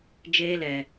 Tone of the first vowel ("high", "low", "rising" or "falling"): high